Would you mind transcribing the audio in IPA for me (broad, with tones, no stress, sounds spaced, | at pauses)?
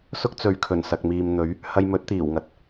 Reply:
s ʊ˥ k̚ t͡s ɵ˨ ɥ kʰ ɵ˨˩ n s ɐ˨ k̚ m iː˨ m n̪ ɵ˨˥ ɥ | h ɐ˧ j m ɵ˨˥ t̚ t̪ iː˨˩ w ŋ ɐ˨˥ t̚